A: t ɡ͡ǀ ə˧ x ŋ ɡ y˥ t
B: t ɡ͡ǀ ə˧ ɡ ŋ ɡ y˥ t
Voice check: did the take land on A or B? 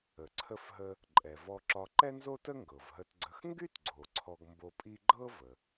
A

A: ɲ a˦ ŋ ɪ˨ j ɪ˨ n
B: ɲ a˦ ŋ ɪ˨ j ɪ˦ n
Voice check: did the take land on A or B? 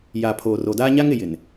A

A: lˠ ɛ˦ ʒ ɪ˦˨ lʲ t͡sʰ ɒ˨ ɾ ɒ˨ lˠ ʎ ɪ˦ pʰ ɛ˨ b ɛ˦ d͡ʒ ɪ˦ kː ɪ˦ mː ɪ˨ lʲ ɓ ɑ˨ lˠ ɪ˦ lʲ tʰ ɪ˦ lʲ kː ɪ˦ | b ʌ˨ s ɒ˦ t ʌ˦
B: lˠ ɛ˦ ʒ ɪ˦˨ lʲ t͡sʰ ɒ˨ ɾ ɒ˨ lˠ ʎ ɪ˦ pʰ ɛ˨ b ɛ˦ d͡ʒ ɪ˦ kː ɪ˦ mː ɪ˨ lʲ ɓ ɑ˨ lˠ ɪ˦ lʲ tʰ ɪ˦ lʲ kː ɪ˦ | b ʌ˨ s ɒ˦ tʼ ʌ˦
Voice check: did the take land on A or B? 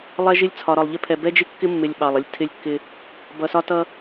A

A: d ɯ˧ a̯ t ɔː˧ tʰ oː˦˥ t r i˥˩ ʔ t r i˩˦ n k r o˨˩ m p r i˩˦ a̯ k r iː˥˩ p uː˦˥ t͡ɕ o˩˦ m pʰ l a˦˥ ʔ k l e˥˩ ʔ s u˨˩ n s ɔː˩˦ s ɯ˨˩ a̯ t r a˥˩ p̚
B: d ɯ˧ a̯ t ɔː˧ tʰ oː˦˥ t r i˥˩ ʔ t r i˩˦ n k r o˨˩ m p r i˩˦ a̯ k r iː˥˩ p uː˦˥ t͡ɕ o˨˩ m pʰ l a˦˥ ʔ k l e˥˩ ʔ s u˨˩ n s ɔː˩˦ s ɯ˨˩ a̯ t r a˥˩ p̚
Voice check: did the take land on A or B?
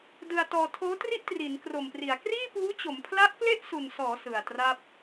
A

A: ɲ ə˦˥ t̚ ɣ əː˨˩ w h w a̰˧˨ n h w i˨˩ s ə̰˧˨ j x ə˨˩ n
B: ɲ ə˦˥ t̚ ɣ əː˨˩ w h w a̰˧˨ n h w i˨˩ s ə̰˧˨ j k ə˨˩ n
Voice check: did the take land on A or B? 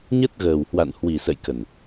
B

